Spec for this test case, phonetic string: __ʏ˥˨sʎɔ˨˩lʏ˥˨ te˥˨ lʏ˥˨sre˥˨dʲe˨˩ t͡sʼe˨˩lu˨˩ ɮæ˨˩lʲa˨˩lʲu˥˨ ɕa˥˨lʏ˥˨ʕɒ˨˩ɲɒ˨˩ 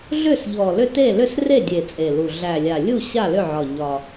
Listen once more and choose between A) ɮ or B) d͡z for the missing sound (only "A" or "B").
A